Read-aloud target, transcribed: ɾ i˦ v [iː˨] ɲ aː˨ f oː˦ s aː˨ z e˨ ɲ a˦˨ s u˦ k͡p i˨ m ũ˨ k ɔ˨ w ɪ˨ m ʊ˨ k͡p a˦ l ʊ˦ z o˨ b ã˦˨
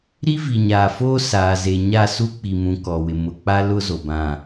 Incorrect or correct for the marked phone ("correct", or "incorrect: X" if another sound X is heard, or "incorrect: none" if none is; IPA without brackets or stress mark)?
incorrect: i˨